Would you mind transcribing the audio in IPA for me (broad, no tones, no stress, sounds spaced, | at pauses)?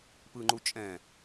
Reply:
p ɯ ŋ͡ǃ u t͡ʃʼ ɛ̃